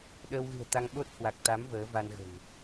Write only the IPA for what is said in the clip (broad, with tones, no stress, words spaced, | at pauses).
ɗəː˧wɣɨ̤˨˩ə̯t̪a˧ŋ ɓo˦˥t̚hwa˨˩k̚t̪a˨˦m vəː˨˦ va˧nɣə̤˨˩n